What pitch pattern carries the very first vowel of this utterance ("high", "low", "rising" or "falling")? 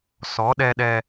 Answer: rising